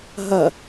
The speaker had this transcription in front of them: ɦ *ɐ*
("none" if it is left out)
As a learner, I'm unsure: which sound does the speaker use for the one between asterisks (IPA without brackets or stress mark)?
ɐ